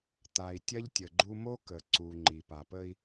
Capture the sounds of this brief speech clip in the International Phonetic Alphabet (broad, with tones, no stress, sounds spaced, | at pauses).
t̪ a˨ i̯ tʲ ɐ˦ ʎ tʲ ə˨ ɡ͡ǃ u˦ m o˦ k ə˨ ǀ u˨ ŋ͡ǃ i˨ p a˨ p ə˦ i̯